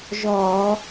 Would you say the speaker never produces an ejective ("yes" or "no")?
yes